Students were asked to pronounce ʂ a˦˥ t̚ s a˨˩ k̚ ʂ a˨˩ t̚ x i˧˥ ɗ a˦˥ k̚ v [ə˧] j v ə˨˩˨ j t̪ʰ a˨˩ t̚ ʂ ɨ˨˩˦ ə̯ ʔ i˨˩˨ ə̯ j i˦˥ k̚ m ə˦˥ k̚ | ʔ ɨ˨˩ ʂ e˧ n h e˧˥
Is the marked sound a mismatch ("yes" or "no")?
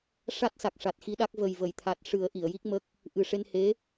yes